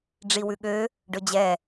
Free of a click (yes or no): yes